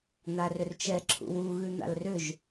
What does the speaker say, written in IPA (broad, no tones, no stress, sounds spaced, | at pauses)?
n̪ a r ʏ r t͡ʃ ɛ ǁʰ ṵ w u ɣ ʉ n̪ a̰ l r ʏ ʒ